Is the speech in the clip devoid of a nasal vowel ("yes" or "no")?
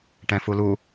no